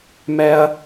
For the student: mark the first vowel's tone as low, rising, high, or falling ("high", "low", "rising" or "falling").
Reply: high